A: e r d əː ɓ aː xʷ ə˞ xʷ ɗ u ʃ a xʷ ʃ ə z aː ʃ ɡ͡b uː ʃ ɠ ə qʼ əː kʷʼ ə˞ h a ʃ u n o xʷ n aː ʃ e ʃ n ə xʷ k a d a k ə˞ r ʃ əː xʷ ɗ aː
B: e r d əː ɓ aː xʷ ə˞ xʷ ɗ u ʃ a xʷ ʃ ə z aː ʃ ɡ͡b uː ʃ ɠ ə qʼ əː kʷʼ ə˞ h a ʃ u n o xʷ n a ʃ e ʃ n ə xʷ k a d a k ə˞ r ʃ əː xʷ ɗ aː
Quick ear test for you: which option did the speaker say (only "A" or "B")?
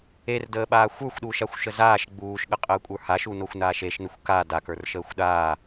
A